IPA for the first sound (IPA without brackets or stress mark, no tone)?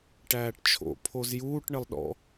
ʈ